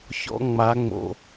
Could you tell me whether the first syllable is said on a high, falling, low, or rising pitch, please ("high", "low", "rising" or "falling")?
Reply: high